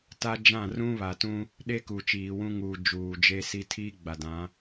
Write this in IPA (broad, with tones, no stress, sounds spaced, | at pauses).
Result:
t a˦ d͡ʒ ã˦˨ r ũ˦ β a˨ t ũ˦ | ɗ e˦ k u˨ t͡ʃ iː˨ w ũ˦ ŋ u˨ d͡ʒ uː˨ d͡ʒ e˦ s i˦ tʰ iː˦ ɡ͡b a˨ d ã˨˦